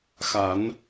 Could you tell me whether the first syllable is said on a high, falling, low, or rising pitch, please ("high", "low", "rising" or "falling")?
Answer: low